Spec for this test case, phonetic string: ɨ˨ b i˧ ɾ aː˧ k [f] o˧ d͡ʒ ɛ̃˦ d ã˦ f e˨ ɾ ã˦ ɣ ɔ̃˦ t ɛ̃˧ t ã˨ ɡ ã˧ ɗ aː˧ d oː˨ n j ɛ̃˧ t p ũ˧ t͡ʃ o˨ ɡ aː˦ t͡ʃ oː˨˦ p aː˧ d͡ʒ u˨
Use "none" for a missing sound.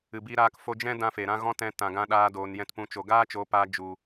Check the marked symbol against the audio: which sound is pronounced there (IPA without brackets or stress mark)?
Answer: f